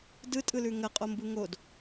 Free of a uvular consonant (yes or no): no